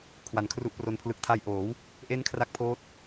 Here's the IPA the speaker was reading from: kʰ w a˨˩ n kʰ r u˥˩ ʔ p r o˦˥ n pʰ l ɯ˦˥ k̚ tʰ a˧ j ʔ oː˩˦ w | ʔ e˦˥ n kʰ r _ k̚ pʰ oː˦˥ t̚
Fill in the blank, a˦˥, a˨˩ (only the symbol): a˦˥